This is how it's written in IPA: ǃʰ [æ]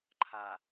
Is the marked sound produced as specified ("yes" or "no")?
no